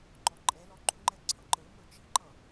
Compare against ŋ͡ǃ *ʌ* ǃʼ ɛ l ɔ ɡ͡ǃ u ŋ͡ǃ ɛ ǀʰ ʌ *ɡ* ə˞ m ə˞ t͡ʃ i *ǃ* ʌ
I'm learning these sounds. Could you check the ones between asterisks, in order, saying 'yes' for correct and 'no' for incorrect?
no, no, yes

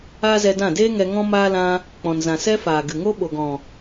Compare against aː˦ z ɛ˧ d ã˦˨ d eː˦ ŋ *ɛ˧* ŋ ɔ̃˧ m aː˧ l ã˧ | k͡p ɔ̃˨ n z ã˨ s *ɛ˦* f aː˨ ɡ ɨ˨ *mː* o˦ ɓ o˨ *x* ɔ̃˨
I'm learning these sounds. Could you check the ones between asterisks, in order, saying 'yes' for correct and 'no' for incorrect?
yes, yes, no, no

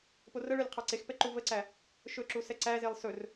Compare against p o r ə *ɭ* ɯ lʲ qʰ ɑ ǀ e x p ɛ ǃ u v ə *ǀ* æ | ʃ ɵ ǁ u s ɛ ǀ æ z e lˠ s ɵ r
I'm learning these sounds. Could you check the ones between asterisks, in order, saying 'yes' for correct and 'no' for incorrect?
yes, yes

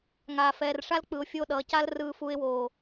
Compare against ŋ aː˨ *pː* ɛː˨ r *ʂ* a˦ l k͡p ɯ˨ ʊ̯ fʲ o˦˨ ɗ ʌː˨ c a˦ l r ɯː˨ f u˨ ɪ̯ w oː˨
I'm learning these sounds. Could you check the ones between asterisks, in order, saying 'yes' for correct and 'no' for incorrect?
no, yes

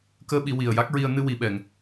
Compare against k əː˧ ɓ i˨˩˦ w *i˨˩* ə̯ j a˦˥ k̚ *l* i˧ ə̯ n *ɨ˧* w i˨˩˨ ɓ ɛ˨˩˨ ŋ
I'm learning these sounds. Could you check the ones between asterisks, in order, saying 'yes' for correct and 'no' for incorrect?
yes, no, yes

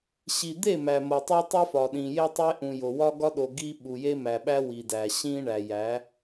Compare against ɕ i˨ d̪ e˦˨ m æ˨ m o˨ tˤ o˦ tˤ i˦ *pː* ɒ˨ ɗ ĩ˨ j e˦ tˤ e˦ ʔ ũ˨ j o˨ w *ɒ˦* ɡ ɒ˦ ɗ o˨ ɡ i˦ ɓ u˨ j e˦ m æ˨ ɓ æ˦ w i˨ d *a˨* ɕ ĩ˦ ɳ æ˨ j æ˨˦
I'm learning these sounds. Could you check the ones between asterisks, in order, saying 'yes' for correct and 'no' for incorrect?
no, yes, no

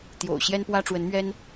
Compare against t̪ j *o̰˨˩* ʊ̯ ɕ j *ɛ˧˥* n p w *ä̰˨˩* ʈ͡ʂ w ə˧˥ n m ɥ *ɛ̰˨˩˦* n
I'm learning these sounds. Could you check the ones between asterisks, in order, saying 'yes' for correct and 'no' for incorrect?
yes, no, no, no

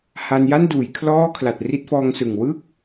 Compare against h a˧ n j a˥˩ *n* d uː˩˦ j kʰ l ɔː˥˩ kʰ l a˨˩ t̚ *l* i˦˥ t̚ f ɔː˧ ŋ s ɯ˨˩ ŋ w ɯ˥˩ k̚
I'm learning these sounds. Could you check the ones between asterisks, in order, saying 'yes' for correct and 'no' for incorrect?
yes, no

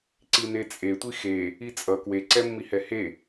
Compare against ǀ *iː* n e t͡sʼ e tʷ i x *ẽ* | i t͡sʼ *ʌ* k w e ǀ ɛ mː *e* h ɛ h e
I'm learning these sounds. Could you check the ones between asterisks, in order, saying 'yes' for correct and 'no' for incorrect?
no, no, yes, no

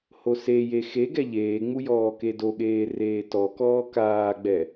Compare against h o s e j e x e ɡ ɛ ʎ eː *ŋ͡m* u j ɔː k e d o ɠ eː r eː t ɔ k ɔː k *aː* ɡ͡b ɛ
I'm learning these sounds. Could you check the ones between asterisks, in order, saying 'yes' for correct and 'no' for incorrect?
yes, yes

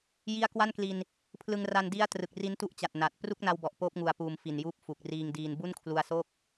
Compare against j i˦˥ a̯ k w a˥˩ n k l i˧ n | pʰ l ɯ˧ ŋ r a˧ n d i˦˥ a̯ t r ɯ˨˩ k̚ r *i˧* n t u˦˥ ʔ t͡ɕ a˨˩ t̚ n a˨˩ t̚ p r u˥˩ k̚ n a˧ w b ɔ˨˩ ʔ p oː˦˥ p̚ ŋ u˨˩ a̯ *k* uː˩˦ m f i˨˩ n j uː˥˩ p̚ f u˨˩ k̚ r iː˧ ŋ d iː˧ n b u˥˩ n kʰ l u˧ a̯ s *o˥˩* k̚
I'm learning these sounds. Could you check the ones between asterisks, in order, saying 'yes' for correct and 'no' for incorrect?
no, no, yes

